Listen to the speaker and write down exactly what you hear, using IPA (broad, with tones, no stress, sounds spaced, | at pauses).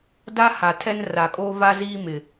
d a˦ h a˨ tʰ ɛ˦ n r a˨ kʼ oː˦ v a˦ z iː˦ m ɪ˨